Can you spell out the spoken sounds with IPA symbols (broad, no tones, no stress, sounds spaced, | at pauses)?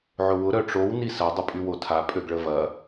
ʕ ʊ w ʊ ɾ œ ʈ͡ʂ o w n i s ɐ dˤ ə pʼ y w o tʰ a pʼ ø ɡ ɭ ə v ɐ